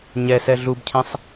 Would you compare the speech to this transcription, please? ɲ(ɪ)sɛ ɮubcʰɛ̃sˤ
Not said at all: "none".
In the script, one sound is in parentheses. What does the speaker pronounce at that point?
ɛ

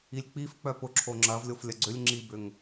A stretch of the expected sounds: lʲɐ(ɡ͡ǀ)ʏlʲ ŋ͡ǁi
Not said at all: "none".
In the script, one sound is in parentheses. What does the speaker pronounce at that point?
ɡ͡ǀ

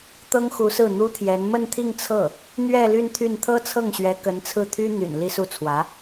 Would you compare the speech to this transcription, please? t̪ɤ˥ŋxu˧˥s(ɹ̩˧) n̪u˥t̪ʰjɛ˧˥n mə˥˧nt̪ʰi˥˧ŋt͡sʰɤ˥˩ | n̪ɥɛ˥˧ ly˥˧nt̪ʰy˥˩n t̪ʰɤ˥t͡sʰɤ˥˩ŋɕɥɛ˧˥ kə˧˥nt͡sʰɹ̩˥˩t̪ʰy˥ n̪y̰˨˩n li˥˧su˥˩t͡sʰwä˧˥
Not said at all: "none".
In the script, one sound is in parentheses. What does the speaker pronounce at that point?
ɹ̩˥˩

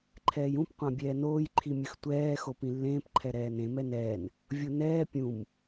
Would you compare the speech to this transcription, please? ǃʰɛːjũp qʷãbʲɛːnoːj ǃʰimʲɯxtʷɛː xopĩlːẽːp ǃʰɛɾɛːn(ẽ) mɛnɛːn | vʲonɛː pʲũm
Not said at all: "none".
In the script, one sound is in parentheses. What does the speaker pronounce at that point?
ẽ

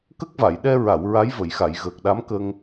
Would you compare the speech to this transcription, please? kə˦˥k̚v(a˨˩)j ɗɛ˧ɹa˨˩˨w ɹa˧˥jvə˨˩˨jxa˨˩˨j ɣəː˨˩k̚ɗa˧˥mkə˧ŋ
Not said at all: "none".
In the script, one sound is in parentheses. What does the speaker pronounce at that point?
a˨˩˨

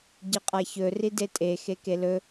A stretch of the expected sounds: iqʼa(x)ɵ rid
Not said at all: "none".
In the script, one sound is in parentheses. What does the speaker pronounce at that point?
ç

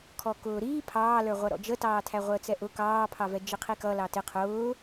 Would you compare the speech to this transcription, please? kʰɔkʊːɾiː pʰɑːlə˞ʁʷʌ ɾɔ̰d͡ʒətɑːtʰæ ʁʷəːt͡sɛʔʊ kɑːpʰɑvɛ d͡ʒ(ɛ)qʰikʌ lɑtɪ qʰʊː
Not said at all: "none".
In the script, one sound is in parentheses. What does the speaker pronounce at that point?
ɪ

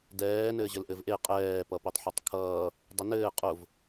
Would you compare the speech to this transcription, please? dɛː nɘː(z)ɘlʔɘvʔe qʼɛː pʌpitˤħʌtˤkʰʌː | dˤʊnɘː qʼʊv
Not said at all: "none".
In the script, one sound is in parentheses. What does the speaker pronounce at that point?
ʑ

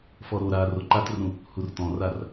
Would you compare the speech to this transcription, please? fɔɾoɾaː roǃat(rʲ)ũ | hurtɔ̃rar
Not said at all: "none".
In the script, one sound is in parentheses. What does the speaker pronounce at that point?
r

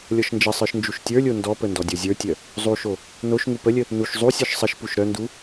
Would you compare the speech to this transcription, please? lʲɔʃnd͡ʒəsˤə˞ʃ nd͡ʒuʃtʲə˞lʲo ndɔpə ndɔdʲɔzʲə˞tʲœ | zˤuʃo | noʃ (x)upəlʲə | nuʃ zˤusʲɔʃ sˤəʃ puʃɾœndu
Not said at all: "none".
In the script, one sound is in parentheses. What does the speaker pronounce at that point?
ŋ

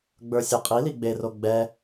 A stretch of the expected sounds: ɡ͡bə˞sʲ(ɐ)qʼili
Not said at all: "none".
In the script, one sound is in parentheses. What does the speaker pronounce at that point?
ɐ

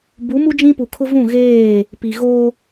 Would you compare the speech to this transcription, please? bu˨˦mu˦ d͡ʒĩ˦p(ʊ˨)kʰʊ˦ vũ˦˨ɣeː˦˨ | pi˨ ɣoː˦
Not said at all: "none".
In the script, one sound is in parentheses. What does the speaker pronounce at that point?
u˨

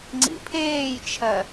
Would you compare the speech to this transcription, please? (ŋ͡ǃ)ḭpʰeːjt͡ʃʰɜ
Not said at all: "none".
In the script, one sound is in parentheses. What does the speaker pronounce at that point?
ŋ͡ǀ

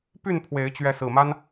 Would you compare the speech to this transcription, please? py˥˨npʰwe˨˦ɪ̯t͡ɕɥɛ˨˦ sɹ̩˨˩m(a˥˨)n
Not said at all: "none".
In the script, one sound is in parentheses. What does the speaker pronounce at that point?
a˦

